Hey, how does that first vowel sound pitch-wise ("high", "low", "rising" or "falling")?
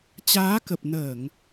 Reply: rising